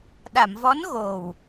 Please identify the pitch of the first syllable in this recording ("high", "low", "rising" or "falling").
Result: low